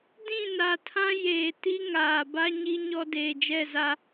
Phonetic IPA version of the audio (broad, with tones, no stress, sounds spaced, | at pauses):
d ĩ˦˨ n a˨ tʰ ã˦ j eː˨ t i˦ ŋ aː˨ b a˦ ɲ i˦ ɲ ɔ˦ d eː˨ d͡ʒ ɛ˦˨ z a˦